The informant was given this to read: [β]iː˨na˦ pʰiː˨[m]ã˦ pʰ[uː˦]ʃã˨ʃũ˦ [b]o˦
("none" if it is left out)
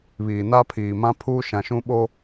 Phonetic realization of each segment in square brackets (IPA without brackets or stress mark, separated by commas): β, m, uː˦, ɓ